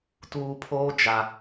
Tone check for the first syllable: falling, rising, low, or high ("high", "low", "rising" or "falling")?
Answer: low